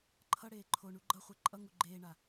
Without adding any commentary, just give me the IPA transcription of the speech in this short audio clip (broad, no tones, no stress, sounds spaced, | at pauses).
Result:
ǃʰ ʌ ɽ eː ǃʰ o ɳ u ɡ͡ǃ ʌ χʷ e ǃʼ ʌ ŋ u ɡ͡ǃ eː ɳ a